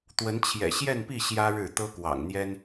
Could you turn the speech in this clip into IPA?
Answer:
t̪ w ə˧˥ n t͡ɕʰ j ɛ̰˨˩ ɕ j ɛ˥˧ n p i˥˩ ɕ j ä˥ ɻ ɻ̩˥˩ t̪ ɤ˥ k w ɑ̰˨˩ ŋ n̪ j ɛ˥ n

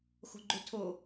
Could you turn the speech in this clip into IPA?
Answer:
x o̤ ɡ͡ǃ o tʰ o

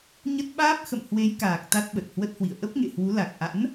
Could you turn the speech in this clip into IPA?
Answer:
ɲ ə˦˥ t̚ ɓ aː˦˥ p̚ x ə̰˧˨ m h w e˨˦ j k aː˨˩ k̚ t̪ a˦˥ t̚ ɓ ə˨˩ t̚ h w ə˦˥ t̚ h w ḭ˧˨ ə̯ ʔ ə˦˥ p̚ ŋ ḛ˧˨ h w u˨˦ l a˨˩ k̚ ʔ a̰˧˥ n

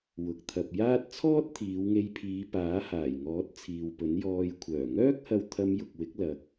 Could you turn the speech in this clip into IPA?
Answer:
w ʊ˨ k̚ t̪ʰ ɐ˨ p̚ j aː˥ t̚ t͡sʰ ɔː˥ t̚ t̪ʰ iː˨˧ w ŋ e˧ j pʰ iː˨˧ p aː˨˥ h aː˨˩ j ŋ ɔː˨˥ t̚ t͡sʰ iː˨ w p ɵ˨˥ n j ɔː˧ j kʷʰ œː˨˩ ŋ œː˥ k̚ h ɐ˧ w t̪ʰ ɐ˧ m j ʊ˨ k̚ w ɪ˨˥ k̚ l ɐ˨ k̚

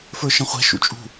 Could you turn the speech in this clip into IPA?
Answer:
f ə˞ ʃ ə̃ χʷ ɛ̤ ʃ ṵ t͡ʃʼ ṳ

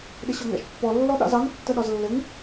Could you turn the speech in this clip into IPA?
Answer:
ɗ ɪ ɕ ɔ ŋ æ̰ ʃ pː ɔ lː ɔ ɗ ɑ̰ z ɑ ŋ tː ə ɗ ɒ z lː ɪ ŋ

